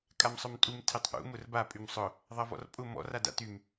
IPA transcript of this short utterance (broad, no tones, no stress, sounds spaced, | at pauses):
kʼ a m sˤ œ m tʼ u m tʰ e tˤ ʔ ṵ m ʊ r b a pʼ y m sˤ ʊ | ðˤ ɐ v ɔ̰ r pʼ ʊ m ɔ̰ r a d a̰ t y m